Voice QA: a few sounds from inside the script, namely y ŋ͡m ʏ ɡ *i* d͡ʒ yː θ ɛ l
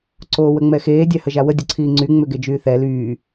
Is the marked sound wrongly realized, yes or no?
yes